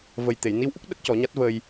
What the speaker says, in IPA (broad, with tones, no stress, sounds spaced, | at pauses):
v ə˨˩ j t̪ e˨˩˨ j n i˧˥ w ʔ u˦˥ k̚ ɗ ə˦˥ k̚ c ɔ˨˩˦ ɲ a˦˥ t̚ v əː˧ j